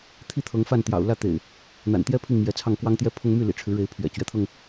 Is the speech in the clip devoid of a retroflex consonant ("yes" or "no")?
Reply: no